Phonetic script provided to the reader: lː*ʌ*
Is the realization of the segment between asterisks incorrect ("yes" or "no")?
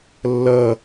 no